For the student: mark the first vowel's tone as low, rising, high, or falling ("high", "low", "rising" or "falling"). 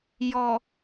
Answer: low